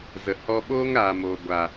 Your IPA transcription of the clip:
zə˨ hɔ˧ ɓoː˦ŋɾaː˨moː˨ ɡʷa˨

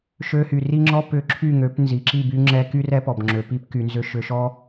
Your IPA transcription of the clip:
ʃø˧hy˨ ri˦ŋ͡ǁɔ˦ pʏ˦˨ ǁʰy˦˨ŋø˨˦p nzi˨ǁi˦˨by˧ŋ͡ǁɛ˧ ky˦rɛ˦ pɔ˨bŋ͡ǁø˨pi˦p ky˧nzʏ˦ ʃʏ˧ʃɔ˦

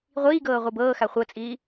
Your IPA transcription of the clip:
ʁʷiːɡɤː ʁʷibɤːxa χʷɤt͡sʼiː

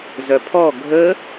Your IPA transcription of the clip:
zœpʰɔ ɡʱə

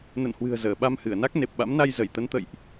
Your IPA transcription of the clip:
nə̰˧˨nhwɨ̤˨˩ə̯ zəː˧˩ɓa˧mhɨ˧˩ə̯na˦˥k̚ ne˨˩p̚ɓa̰˧˥mna˧j zə˧˩jt̪ə˨˦nt̪ə̰˧˨jʔ

